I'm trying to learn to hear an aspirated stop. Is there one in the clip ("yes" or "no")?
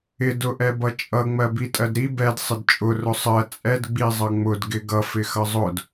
no